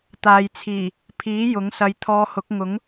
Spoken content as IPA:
t̪ aː˨ j t͡sʰ iː˨˩ | pʰ iː˨˥ j ʊ˨˥ ŋ s ɐ˧ j t̪ʰ ɔː˧ h ʊ˨˥ k̚ ŋ ʊ˨˥ ŋ

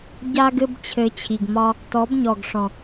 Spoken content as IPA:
ɟ a˦ ɡ ɘ˦ b t͡ɕʰ ɘ˧ t͡ɕʰ i˨ ɡ m ɒ˦ | t ɔ˨˦ b ɲ ɔ˨ ɡ ʂ ɔ̃˨

